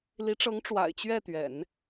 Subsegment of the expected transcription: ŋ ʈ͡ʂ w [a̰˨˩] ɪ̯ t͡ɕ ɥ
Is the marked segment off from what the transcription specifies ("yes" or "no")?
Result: no